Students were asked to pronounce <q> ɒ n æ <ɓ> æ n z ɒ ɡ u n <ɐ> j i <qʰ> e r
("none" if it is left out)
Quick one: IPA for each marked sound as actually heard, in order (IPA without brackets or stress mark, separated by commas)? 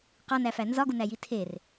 q, f, æ, tʰ